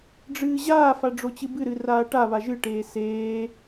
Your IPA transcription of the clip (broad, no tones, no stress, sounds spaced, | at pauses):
ɖ͡ʐ ɨː ʑ aː f a ɖ͡ʐ o t͡ɕ ɨ b ɨ ɾ ɨ r aː ʈ a β a ʒ ɨ ʈ eː s eː